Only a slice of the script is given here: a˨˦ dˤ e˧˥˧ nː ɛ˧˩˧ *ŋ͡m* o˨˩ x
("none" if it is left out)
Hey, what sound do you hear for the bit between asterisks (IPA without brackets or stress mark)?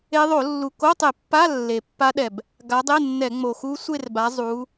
ŋ͡m